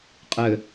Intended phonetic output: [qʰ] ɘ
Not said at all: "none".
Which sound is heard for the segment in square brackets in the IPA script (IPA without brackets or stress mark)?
qʼ